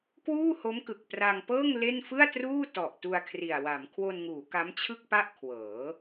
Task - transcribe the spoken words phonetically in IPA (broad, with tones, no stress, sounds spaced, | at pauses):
k w uː˥˩ h o˦˥ m k ɯ˨˩ k̚ p r a˧ ŋ p ɤː˥˩ ŋ l e˥˩ n f ɯ˥˩ a̯ t r uː˥˩ t ɔ˨˩ ʔ t u˧ a̯ kʰ r i˨˩ a̯ w a˩˦ m kʰ w o˧ n ŋ uː˩˦ k a˦˥ m t͡ɕʰ ɯ˥˩ k̚ p a˥˩ ʔ kʰ w ɤː˩˦